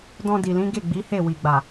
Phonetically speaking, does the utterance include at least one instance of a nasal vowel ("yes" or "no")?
yes